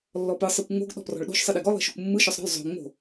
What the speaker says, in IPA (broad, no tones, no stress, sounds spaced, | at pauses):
lː ɔ p ɯ sˤ ɯ kʷ ŋ͡m o̤ ɡ ɗ ɔ̤ p r ɔ̤ ɭ ɗ o̤ ʃ sˤ ɯ ɗ i ɡ ɔ lˠ i̤ ʃ o kʷ mː ɯ ʃ ɔ sˤ ɾ ɔ̤ lˠ zˤ o̤ ŋ͡m o̤